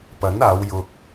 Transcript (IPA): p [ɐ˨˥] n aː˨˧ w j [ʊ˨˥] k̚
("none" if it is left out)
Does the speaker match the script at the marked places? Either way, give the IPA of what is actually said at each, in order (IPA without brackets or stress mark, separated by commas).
ɐ˨˥, ʊ˨